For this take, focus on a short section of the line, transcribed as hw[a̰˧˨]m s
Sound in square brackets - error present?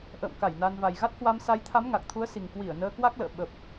yes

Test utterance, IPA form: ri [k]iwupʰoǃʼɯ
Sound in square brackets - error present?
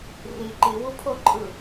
yes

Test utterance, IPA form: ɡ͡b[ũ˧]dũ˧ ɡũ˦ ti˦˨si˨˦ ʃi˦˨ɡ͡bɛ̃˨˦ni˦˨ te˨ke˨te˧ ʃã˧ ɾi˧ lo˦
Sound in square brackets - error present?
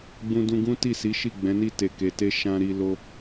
no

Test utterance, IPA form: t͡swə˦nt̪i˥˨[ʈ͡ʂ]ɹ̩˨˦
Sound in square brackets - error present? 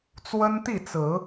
yes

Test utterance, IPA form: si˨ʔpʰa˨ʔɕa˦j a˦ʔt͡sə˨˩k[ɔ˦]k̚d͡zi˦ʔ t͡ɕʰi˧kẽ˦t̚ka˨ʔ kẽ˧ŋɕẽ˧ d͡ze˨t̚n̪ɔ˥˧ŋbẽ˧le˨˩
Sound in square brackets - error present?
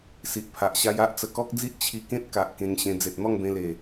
no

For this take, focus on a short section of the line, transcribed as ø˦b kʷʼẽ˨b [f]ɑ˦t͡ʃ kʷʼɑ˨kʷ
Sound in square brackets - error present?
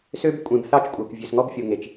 yes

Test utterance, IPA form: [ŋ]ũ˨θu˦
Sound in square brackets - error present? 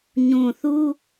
yes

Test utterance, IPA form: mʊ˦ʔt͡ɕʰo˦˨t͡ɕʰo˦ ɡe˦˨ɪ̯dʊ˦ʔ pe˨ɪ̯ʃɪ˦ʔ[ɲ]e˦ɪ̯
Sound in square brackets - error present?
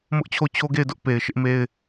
yes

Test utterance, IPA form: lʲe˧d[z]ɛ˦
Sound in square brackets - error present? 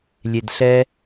yes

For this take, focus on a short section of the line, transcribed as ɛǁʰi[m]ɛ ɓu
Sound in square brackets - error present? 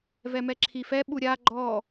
yes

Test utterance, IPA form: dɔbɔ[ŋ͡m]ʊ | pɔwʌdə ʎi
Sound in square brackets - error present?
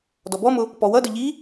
yes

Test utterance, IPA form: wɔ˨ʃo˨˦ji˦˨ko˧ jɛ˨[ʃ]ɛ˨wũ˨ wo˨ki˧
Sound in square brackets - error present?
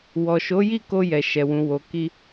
no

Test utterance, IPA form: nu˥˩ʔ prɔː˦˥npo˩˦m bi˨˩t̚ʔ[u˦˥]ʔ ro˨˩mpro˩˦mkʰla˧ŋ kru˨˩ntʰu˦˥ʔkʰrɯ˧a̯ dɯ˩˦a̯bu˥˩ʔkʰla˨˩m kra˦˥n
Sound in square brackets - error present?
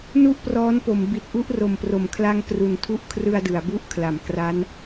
yes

